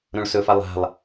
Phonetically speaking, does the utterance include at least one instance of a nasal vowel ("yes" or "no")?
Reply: yes